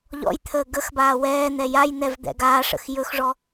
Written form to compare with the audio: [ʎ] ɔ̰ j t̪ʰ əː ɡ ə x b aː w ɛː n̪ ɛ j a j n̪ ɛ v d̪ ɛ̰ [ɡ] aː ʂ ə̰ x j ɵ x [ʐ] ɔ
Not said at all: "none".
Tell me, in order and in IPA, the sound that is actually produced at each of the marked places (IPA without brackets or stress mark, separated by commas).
ʎ, ɡ, ʐ